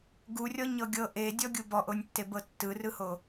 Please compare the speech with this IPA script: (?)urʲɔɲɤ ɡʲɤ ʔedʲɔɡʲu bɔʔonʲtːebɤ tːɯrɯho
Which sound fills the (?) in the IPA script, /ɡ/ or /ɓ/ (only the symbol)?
ɡ